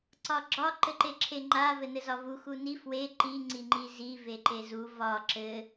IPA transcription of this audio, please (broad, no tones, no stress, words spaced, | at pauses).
ǀɒɡ͡ǁɒ ǃɘǃeǁʰeŋ͡ǃa vɘnɘzɒvu xuni fwe ǃi ŋ͡ǀiŋ͡ǃizi veǃezu vɒ ǁɘ